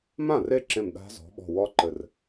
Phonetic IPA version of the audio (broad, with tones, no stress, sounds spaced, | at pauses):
m ã˥˩ r e˦˥ ǁ ẽ˧˩ m ɗ a̤˦˥ z ɔ̤˨˥ ɓ ɔ̤˧˩ w ɔ˦˥ ǃ ɘ˧˩ r